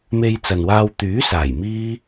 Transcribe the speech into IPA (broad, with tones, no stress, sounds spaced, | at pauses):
m e˧ j t͡s ɐ˨ n w aː˧ w t̪ yː˨˥ s aː˨˩ j m iː˥